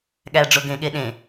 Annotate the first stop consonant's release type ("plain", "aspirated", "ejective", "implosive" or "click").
implosive